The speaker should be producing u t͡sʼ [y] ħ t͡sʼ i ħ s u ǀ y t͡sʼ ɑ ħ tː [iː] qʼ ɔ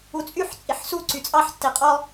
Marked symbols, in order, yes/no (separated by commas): yes, no